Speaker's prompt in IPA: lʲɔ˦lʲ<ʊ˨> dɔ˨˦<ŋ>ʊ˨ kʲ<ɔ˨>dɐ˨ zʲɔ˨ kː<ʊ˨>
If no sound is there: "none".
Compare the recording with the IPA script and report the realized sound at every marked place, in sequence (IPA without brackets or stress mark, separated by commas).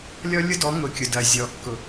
ʊ˦, ŋ, ʊ˨, ʊ˨